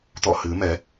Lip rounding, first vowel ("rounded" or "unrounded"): rounded